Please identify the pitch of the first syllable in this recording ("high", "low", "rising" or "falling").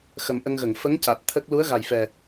low